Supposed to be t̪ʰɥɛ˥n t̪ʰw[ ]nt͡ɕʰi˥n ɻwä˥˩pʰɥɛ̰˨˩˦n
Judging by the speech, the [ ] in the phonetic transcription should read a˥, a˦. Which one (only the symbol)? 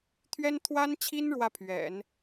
a˥